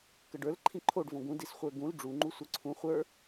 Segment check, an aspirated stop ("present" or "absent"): present